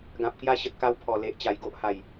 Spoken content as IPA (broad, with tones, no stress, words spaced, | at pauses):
ɡã˨p̚kja˦ɕə˨t̚ ka˧wpʰɔ˨˩le˨ʔ t͡ɕa˨˩jɡo˦ʔha˨˩j